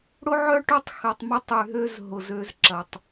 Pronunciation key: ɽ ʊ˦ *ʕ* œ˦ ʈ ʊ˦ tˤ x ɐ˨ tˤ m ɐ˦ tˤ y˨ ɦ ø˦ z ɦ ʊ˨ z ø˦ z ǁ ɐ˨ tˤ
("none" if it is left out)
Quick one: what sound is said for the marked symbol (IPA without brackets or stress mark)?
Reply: ʕ